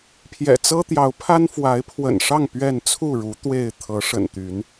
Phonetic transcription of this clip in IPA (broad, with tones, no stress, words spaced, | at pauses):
pʰjɛ̰˨˩t͡sɤ˦t̪jɑ˨˦ʊ̯pʰa˦n fwa˨˦ɪ̯pʰwə̰˨˩nʂɑ˥˨ŋ pɥɛ˥˨n t͡sʰu˥˨ɻu˨˦ t̪we˥˨ɪ̯ t̪ʰɤ˨˦ ʂə̰˨˩nt̪y˨˦n